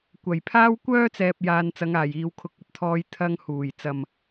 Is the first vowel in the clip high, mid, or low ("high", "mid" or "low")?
low